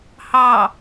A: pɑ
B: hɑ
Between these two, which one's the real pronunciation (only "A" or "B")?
B